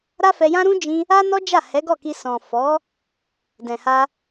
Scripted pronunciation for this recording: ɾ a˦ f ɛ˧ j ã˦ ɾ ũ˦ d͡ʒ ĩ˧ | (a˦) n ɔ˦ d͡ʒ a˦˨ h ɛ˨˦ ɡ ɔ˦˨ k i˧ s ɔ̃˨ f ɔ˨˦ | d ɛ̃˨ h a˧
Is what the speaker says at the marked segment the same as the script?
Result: yes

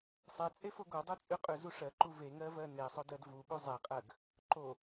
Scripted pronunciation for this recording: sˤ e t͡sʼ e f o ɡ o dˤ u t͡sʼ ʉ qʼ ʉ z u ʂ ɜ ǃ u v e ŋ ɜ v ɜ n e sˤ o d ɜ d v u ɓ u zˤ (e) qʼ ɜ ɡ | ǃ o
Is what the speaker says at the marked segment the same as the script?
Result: yes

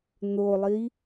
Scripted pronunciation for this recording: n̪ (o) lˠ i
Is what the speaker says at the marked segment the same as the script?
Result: yes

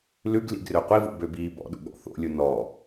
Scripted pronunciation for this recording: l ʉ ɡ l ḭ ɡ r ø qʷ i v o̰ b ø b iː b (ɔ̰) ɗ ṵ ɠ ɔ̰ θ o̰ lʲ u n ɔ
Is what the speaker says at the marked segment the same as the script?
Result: yes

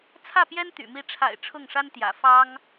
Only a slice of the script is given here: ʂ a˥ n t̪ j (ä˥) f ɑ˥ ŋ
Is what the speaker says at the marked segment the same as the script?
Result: no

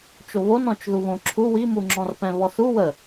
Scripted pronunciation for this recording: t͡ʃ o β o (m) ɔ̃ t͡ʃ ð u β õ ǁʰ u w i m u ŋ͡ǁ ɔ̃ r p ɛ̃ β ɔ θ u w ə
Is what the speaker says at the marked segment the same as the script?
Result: no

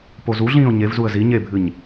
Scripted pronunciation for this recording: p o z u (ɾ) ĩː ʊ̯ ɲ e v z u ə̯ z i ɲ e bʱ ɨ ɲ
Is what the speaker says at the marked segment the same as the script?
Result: no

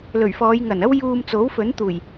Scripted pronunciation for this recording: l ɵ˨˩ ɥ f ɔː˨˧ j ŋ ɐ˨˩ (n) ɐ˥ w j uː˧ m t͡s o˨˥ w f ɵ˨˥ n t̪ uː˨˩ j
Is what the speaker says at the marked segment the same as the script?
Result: yes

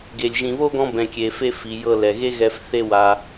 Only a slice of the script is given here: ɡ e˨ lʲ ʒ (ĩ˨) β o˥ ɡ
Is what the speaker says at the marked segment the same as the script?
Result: yes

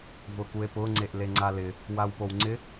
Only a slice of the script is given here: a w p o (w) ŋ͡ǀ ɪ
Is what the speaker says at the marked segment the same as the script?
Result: yes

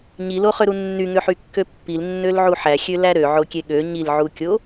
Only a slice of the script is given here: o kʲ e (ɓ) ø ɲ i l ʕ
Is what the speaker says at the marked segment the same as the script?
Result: no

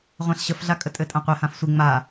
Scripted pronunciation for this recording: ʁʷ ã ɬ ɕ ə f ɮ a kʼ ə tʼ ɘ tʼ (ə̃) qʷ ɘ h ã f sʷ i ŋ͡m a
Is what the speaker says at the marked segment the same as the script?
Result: no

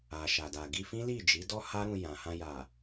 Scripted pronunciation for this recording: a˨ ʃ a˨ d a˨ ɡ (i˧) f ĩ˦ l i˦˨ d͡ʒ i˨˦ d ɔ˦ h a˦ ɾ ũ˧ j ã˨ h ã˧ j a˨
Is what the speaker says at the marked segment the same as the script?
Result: yes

